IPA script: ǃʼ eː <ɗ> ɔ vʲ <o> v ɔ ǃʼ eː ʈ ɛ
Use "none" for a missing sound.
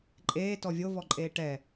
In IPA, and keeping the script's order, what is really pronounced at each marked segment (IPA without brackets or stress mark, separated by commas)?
t, o